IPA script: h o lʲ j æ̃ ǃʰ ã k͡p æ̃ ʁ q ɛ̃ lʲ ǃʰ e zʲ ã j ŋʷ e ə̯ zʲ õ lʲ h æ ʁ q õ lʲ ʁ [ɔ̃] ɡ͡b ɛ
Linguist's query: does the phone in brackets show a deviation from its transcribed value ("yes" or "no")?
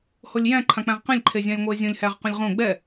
yes